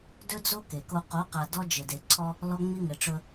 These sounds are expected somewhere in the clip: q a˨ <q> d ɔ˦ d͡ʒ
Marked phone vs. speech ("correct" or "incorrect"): incorrect